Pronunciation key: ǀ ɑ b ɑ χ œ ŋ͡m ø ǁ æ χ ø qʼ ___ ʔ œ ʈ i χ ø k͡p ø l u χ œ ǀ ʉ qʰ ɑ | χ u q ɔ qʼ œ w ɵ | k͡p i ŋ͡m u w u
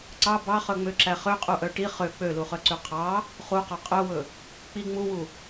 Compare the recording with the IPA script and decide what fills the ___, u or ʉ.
u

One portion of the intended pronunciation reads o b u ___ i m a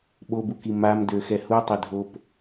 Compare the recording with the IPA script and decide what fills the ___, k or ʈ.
k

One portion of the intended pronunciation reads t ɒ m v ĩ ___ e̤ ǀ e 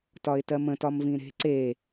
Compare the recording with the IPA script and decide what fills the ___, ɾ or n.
ɾ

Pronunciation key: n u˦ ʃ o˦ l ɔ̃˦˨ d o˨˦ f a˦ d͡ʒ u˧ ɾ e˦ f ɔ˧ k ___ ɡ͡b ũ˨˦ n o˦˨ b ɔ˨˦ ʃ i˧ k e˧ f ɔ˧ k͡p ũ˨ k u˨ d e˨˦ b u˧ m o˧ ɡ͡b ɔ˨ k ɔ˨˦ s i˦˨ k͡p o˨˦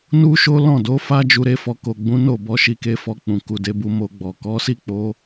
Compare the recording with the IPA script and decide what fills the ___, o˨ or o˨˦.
o˨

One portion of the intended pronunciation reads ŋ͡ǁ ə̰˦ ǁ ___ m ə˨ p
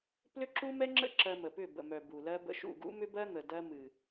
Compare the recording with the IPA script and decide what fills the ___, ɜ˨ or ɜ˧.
ɜ˧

